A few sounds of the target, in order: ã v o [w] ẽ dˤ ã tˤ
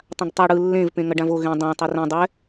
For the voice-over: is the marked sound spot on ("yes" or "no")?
no